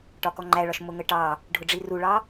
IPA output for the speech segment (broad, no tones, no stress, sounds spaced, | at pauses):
ʈ ɒ k ɔ ŋ͡ǃ æ ɭ ɒ ʃ m ʊ ŋ ə ʈ ɑ | ɖʱ ʊ ɖ͡ʐ i r u ɭ ɑ